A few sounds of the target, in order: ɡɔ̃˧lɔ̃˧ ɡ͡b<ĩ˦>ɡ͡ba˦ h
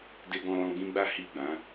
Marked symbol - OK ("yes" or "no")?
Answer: yes